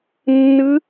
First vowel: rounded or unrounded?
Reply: unrounded